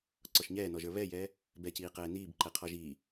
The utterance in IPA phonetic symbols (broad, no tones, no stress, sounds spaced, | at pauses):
ǀ ɔ ʃ ɲ ɛː n ɔ ʒ ə˞ β ɛ j ɛː | b ɛ c iː q ɛː n iː b ǃ ɛ qʰ ɔ ʒ iː